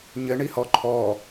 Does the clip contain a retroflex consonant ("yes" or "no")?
yes